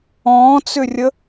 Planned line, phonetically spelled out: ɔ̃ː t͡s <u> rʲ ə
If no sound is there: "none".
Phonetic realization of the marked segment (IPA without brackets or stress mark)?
ʏ